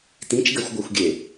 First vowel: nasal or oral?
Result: nasal